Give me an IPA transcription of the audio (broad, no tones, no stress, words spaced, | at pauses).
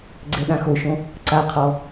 ɡ͡ǀɛɗãxoʃõ | ǀaqʰɔ